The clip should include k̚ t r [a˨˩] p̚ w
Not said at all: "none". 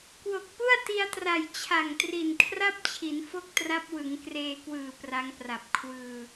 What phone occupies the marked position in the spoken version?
a˦˥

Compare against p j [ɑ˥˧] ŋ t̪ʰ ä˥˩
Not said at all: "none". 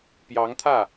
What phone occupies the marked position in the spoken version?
ɑ˧˥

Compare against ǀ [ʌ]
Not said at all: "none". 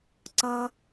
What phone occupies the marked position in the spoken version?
ʌ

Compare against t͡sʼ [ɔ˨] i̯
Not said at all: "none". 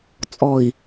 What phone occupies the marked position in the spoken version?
ɔ˨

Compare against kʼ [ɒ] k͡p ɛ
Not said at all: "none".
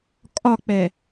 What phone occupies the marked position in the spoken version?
ɒ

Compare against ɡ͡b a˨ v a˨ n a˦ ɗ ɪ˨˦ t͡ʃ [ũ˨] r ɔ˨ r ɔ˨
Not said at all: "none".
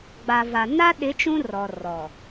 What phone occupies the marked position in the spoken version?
ũ˦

